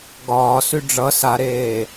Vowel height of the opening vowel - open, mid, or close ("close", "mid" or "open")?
open